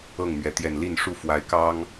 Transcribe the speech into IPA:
ɤ˥˨ŋmɥɛ˨˦ t̪jɛ˨˩nli˥˨nʂu˥˨ fwa˨˦ɪ̯kɑ˦ŋ

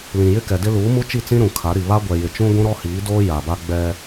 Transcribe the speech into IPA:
lĩ˨jɪ˦kɛ˨dɪ˦ luː˨˦mu˦t͡ʃi˦˨t͡sĩ˦ ɾũ˨kʰa˨˦ɾi˨ βa˦ɡʷɛ˨jɪ˨t͡ʃũ˦ ɡʷũ˦ɾɔ˦hiː˨˦doː˦ ja˨ba˦ɡ͡bɛ˦

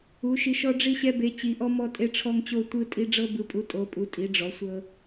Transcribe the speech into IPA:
u˩˧ʃi˩˧ʃɔ˧ ɖ͡ʐi˧ɕɛ˧be˩˧ t͡ɕi˩˧ʔɔ˧ mɔ˧tʼe˧ʈ͡ʂʰɔ˧ŋt͡ɕo˧ tʷɯ˧tʼi˧ ɖ͡ʐɤ˧bɯ˩˧pʼu˩˧ tʼo˩˧pʼu˩˧ tʼi˩˧ɖ͡ʐɔ˩˧sʷɤ˧

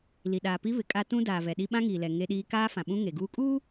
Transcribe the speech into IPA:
li˨ɗaː˨ pi˦βɪ˨kʼa˦ tũ˦daː˨vɛ˨ɗi˦ ɓã˦ŋiː˨lɛ˨ ŋe˦ɗiː˦ kaː˦ fã˨ɓũ˦ ŋe˨ɡuː˦ kʼuː˦

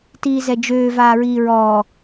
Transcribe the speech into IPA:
tiːzɛd͡ʒøː vaːɹiːɹɔː

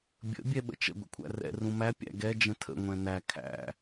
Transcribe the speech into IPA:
bʲə̰ bʲɛɓə̰t͡ʃə̰ ɡʷə̰kʷʰæ̰rɛ̰ rũmæ pʲæ̰ɡɛ d͡ʒə̃tʰə̰ ŋʷɛ̃næ kʰæ̰

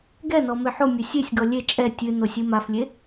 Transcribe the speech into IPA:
ɡɛnɔ meħomʲɘ sʲesʲɡɔ lʲe t͡ʃʼɛ tʲɨ nosʲɨmaflʲe

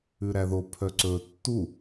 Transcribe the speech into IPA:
ʉɾæðo pʰœǀɵ tːu

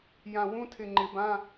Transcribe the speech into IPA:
jã˧˩wũ˧˥˧tʰɪ˧˩ ŋ͡ǃɪ˨˩˦bã˧˥˧

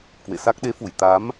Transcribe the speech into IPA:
kwḛ˧˨sa˦˥k̚ ɗe˨˦fu˧˩j t̪a˨˦m

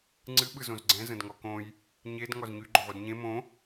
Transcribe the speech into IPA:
ŋ͡ǀɨ ɓɯzõzɡ͡ǀɛ̃ zə̃dŋɔkõj | ɲed ŋɔzɲy ɡ͡ǃʊʁʷɯdɲẽ mõ

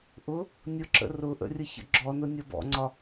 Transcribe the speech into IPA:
ʔʊ | nʲʊǁə̰ rʊʔə̰rʲəçə̰ ɡ͡ǁɔnʊnʲʌ bɔ̰ŋ͡ǀɒ

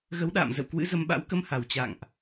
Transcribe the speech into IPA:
ɣə˨˦wɗa̰ː˧˨m zə̰˧˨w kwɨ̰˧˥zə˧m ɓa̰˧˥wkə˧mha˨˩w t͡ɕa̰˧˨ŋʔ

